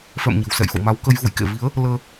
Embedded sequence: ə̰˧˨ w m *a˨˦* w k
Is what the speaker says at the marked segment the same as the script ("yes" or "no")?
yes